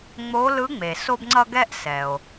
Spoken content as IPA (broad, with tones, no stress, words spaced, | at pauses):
ŋ͡mo˧˥lɯ˧˥ŋ͡me˩ so˧bŋ͡ǀʌ˧ ɡɛ˥ʔsɛ˩o̯